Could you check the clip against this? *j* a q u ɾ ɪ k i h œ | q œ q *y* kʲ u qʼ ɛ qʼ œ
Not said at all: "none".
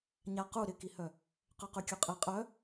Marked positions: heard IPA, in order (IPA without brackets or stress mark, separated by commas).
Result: ɲ, y